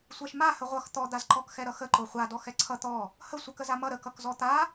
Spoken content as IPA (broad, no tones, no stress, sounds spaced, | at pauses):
sʷ ɛ ʃ m a h ə ʁʷ ʌ x t̪ ɔ d̪ a z ǃ ɔ k x ɛ ɾ ʌ x ə ǃ o χʷ a d ɔ x ɛ ǀʰ ʌ t̪ ɔ | h ə sʷ ə k ə z a m ʌ ɾ ə k ʌ k z ɔ t̪ a